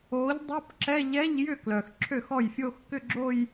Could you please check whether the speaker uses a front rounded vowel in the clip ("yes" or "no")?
yes